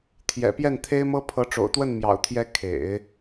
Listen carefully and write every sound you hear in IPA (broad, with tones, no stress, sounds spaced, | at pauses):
t̪ʰ j ɛ̰˨˩ p j ɛ˥˩ n t̪ʰ e˥ ɪ̯ m ɤ˥ pʰ ɤ˧˥ ʈ͡ʂ o̰˨˩ ʊ̯ t̪ w ə˥˩ n m j ɑ̰˨˩ ʊ̯ t̪ʰ j ɛ˧˥ kʰ ḛ˨˩˦ ɪ̯